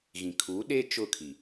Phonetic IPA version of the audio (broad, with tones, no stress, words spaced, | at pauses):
ɣĩ˨kʰu˨˦ɗe˦ t͡ʃʊ˦˨kʰi˨